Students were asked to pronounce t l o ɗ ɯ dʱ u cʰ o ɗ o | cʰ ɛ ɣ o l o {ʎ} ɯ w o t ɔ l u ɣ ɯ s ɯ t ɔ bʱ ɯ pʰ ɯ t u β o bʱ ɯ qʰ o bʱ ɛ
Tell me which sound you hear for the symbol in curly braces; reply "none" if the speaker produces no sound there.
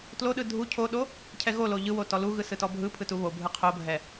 ʎ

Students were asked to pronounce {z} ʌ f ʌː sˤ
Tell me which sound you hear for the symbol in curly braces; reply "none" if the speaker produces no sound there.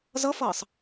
z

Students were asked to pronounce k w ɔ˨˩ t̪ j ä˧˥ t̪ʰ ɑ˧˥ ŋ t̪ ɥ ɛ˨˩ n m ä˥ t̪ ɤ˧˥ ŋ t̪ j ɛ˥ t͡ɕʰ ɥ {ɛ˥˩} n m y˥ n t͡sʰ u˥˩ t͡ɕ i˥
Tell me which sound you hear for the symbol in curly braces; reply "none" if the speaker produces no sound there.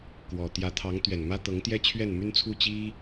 ɛ˥˩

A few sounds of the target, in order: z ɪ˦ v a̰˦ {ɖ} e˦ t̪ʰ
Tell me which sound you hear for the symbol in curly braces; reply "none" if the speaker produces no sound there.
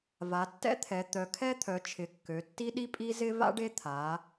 ɖ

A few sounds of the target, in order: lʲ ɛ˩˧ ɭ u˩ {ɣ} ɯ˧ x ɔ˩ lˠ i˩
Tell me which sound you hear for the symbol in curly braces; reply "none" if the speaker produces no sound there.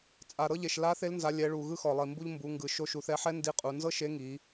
ɣ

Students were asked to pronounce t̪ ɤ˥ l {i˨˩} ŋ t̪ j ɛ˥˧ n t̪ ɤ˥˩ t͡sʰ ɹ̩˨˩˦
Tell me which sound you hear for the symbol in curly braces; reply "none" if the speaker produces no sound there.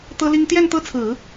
i˥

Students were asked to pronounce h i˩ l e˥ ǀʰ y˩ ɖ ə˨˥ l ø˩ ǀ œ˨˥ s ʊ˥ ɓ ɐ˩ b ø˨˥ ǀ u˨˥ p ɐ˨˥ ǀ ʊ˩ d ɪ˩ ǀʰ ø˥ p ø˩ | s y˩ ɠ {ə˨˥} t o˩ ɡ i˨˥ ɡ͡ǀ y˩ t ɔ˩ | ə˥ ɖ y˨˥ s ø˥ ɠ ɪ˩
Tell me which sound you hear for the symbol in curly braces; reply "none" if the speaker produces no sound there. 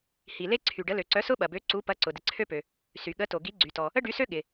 ə˨˥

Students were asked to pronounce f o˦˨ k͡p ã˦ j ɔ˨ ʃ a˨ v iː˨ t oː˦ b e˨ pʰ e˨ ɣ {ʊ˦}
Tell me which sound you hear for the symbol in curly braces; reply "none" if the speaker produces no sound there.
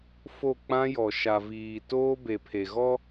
ɔ˦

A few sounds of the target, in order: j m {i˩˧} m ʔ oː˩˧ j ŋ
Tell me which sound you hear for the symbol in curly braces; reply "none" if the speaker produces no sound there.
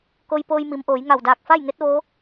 i˩˧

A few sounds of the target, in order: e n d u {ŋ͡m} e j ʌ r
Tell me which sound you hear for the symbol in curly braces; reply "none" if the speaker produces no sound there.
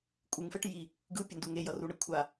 ŋ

